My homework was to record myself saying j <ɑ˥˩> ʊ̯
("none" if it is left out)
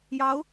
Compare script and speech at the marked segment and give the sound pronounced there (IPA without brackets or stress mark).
ɑ˧˥